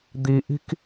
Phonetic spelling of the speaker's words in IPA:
d̪ i ʔ i̤ k

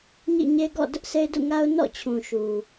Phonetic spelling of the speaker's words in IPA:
ɲ ḭ˦˨ ɲ e˦ ɡ ɔ̰˦˨ d ʊ˦ ʔ sʰ e˦ ɪ̯ d ṵ˦˨ ŋ a˦ ʊ̯ n ɔ̰˦˨ t͡ɕʰ ũ˨ ʃ u˨

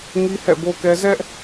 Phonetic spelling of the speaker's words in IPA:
ŋ i˦ h ɛ̰˦˨ b o˦ k ɛ˦ z ɛ˦ ʔ

